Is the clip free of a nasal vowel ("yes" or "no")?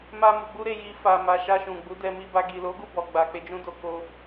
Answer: no